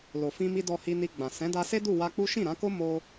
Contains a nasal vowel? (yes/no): yes